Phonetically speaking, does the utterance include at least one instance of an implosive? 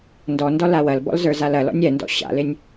no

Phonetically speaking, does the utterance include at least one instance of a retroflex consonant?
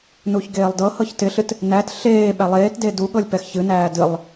no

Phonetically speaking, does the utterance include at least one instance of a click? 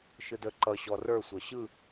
yes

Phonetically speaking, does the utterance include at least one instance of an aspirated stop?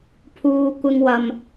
yes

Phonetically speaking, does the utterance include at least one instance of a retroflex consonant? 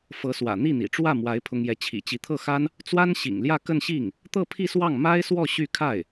yes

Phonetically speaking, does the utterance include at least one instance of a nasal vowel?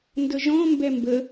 yes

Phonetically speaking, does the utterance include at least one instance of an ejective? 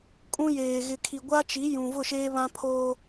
yes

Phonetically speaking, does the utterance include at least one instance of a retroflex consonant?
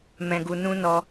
no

